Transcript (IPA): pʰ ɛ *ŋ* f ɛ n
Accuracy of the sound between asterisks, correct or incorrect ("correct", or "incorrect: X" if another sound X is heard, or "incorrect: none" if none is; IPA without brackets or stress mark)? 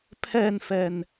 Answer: incorrect: n